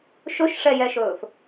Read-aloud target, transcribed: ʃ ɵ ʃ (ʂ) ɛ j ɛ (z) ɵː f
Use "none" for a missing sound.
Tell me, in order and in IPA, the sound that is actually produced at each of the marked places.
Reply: ʂ, ʃ

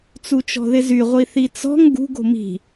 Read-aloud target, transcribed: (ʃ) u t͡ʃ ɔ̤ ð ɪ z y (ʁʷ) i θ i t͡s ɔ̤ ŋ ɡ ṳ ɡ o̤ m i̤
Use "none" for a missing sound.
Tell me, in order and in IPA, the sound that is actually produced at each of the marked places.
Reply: t͡s, ʁʷ

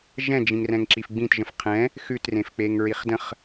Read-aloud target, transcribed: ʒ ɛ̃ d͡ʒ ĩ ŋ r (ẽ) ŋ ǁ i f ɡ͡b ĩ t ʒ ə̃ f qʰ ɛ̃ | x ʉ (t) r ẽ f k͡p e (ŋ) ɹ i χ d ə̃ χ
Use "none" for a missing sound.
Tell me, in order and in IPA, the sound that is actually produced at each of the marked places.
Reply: ɛ̃, t, ŋ

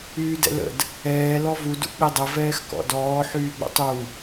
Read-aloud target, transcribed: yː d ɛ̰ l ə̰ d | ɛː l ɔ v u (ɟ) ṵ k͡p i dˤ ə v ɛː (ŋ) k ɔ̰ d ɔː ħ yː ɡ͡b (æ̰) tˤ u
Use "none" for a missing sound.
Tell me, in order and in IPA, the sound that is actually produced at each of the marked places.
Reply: d, x, ə̰

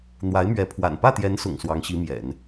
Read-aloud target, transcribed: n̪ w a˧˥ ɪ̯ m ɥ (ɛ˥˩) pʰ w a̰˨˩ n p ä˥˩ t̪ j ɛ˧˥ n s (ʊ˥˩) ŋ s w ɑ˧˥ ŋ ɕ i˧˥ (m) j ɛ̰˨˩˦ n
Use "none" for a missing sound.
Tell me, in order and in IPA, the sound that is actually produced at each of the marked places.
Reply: ɛ˧˥, ʊ̰˨˩, m

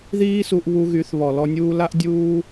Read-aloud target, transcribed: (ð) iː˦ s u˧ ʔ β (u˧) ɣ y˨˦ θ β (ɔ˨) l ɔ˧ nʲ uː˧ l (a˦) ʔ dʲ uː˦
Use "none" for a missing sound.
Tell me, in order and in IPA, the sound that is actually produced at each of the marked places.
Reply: ð, u˧, ɔ˨, a˦

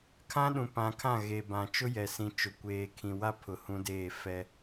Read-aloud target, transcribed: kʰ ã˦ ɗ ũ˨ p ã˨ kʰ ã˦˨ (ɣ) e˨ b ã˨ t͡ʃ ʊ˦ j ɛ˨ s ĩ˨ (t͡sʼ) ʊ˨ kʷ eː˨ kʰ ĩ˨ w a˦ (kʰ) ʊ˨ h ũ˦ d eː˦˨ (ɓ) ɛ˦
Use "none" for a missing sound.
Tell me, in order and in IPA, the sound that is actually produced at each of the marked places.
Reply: ɣ, t͡ʃ, pʰ, f

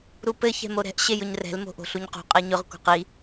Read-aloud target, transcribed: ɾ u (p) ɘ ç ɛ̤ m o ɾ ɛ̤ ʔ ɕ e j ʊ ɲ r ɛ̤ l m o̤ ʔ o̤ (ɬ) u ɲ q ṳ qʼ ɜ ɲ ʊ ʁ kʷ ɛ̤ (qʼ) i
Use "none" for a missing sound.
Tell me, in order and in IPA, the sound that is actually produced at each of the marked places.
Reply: p, ɬ, q

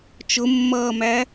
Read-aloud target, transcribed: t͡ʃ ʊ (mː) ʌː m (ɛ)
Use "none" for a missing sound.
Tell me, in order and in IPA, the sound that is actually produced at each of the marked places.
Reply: mː, æ

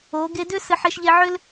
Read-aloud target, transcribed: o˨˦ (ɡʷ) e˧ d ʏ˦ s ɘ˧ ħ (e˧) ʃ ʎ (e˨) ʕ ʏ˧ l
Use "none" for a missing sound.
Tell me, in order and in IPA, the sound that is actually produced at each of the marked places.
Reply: ɡ, e˧, e˧

